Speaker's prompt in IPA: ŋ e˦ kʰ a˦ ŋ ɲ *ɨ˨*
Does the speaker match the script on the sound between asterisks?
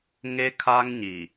no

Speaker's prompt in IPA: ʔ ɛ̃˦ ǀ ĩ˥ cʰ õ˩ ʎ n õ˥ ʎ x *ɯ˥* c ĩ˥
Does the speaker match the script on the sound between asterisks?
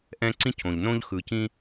no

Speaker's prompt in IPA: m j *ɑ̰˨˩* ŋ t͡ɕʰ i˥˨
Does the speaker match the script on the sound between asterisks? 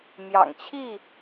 yes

